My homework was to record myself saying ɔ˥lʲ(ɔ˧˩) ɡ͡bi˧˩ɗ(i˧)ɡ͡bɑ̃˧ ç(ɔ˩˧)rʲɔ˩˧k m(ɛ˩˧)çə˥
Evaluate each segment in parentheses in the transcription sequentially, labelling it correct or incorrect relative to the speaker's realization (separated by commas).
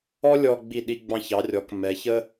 incorrect, correct, incorrect, correct